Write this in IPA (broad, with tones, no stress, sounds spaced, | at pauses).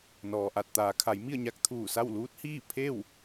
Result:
n ɔː˩ ʔ a˧˩ t̚ t̪ aː˩˧ kʰ a˩˧ j m i˥˨ ə̯ ɲ a˧˥ k̚ t̪ʰ uː˧˩ s a˥˨ w l uː˧˥ t̚ h iː˥˨ pʰ e˥˨ w